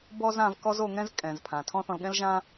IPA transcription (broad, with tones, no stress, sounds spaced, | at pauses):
b ɔ˥ z ã˧ v k ɔ˥ z o˧ ŋ ɛ̃˥ z kʼ ɛ̃˩ z pʰ ã˩ tʰ ɔ̃˥ θ ɔ̃˧ l ɠ ɛ̃˥ l ʒ ã˥